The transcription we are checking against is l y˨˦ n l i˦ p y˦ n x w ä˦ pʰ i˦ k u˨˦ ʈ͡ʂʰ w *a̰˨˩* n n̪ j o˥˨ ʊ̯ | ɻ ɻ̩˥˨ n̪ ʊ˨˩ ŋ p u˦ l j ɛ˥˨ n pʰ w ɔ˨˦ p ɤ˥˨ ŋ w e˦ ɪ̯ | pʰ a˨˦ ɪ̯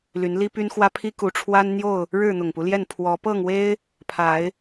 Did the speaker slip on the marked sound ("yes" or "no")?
yes